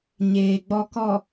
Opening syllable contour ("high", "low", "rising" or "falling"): low